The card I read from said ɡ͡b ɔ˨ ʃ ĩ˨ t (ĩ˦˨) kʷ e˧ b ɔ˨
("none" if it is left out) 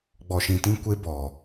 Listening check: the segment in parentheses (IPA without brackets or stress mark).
ĩ˧